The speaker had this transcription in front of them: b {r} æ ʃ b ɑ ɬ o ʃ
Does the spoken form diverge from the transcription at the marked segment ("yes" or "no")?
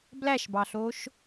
yes